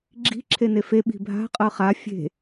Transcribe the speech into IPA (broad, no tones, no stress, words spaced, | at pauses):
ɡ͡ǁi̤ ǁʰenefe ɓi̤bʱa̤ qʼɤχa fʲe̤